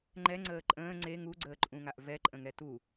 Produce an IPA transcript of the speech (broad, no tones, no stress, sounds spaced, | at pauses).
ŋ͡ǃ ɛ ŋ͡ǀ əː ǃʼ ə̃ː ŋ͡ǀ e ŋ u ɡ͡ǀ əː ǃʼ ũ ŋ a ʔ v ɛ ǃʼ ə̃ ŋ ɛ t u